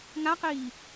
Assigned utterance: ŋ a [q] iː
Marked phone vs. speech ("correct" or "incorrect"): correct